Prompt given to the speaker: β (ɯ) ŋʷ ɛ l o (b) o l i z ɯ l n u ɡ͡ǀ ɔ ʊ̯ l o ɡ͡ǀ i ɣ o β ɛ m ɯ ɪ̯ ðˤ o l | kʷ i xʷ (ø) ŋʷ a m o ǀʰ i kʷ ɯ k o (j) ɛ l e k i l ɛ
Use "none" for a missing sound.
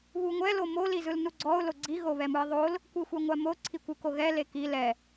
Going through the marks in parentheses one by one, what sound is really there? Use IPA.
u, m, ɛ, ɣ

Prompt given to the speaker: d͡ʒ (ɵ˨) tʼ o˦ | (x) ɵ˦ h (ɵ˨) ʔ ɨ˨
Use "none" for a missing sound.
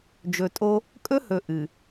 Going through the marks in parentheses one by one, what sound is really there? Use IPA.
ɵ˨, kʼ, ɵ˨

